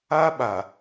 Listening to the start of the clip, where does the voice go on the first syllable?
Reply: high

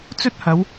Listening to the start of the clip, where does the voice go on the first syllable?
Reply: high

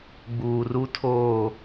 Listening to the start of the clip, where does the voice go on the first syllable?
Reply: low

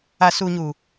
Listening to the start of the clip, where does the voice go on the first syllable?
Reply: low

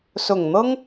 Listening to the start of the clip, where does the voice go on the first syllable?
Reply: low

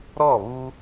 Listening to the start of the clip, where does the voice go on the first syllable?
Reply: falling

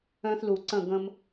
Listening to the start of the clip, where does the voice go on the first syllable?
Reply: high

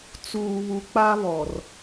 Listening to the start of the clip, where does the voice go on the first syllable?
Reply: low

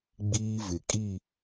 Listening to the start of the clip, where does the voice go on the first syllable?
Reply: high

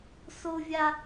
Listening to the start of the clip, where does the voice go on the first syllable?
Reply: high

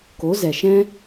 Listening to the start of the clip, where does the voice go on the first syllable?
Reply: rising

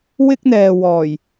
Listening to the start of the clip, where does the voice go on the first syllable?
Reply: high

